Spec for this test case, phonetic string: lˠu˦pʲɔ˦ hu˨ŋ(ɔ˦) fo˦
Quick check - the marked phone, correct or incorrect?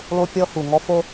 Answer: correct